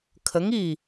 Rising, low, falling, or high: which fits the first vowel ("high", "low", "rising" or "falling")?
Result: rising